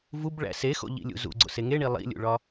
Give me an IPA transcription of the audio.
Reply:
v u b ɭ æ̰ s e x o̰ ʎ ḭ lʲ ṵ z ṵ ɡ͡ǀ o̰ s e ŋ e ɳ i lˠ ḭ lʲ ṵ ɭ ɒ

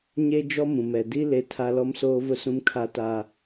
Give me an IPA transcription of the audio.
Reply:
ɲ e˦ d͡ʒ ɔ˦ m ũ˨ m ɛ˨ d i˦ l e˦ tʰ a˦ l ɔ˦ m s oː˦ v ʊ˦ s ũ˦ m kʰ a˦ t a˦

